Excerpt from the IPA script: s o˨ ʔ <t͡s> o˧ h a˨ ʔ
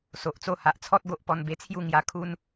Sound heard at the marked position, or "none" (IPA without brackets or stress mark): t͡s